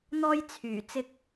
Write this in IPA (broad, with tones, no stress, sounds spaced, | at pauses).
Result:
n̪ ɔː˥ j t͡sʰ yː˨˩ t͡s ɪ˥ k̚